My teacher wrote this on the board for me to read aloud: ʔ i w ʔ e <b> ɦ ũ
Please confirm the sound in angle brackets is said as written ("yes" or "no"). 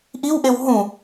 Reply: no